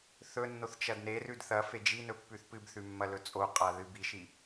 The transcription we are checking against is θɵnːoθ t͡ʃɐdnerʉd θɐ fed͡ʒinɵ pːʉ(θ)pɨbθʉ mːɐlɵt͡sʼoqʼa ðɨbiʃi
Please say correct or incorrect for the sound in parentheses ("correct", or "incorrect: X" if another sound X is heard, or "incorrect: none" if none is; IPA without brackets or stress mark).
correct